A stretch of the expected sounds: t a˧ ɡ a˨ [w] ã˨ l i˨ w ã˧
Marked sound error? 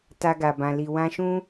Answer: yes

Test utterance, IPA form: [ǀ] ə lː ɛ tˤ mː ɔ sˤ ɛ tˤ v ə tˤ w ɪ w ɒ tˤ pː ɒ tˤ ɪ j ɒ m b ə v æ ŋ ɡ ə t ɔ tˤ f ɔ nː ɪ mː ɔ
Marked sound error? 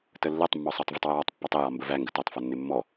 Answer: yes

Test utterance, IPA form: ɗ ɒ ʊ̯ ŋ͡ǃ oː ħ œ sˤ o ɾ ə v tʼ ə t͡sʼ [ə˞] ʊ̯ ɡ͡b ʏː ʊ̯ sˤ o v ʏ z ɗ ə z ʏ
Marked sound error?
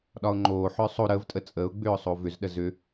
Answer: yes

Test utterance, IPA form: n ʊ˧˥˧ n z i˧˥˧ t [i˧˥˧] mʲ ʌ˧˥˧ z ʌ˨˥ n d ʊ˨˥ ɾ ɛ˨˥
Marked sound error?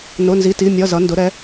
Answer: no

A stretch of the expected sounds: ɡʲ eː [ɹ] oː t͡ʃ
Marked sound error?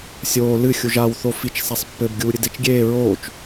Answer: no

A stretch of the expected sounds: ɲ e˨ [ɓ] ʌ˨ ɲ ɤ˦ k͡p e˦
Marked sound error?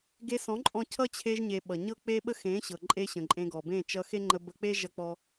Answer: no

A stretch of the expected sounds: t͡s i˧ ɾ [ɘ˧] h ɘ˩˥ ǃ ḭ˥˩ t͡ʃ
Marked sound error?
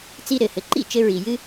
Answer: yes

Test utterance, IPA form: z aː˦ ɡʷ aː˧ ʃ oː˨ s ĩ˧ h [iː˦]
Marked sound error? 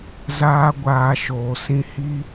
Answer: yes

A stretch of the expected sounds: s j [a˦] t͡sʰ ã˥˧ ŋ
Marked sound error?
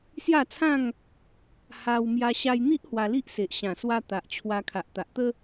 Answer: yes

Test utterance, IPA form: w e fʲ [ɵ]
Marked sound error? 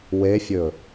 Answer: no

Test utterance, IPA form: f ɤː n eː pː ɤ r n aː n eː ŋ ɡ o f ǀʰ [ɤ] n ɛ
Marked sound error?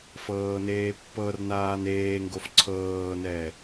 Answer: yes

